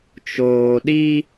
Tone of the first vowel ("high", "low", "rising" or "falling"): low